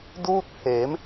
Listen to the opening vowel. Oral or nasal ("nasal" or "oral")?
oral